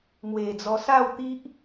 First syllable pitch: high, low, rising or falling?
low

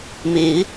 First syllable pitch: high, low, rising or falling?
rising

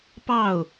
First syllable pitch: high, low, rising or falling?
falling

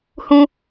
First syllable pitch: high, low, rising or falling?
high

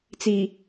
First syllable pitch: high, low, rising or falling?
low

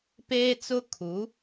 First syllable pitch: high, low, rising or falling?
high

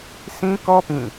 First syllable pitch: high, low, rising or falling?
high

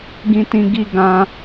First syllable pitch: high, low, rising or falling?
high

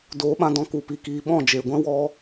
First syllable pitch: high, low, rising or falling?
rising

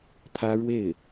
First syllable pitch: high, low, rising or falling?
high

